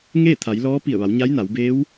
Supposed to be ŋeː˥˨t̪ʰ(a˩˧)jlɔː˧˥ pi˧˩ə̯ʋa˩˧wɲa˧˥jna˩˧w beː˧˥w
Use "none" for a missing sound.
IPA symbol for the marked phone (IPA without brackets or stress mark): a˩˧